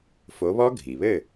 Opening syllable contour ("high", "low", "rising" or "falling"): rising